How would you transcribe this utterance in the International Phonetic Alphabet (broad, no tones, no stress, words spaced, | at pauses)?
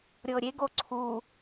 ɾʲɤɾʲeɡo ǀʰu